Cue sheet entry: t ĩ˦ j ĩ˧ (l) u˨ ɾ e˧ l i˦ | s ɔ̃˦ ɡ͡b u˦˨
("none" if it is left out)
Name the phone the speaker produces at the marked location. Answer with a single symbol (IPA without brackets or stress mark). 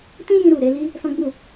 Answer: ɾ